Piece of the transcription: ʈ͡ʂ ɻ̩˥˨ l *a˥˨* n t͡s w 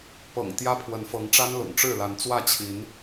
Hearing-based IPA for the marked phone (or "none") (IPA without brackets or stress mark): a˨˦